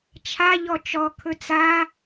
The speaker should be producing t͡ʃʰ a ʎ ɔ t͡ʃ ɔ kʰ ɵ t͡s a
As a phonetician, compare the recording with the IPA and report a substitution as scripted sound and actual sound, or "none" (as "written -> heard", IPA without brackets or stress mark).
none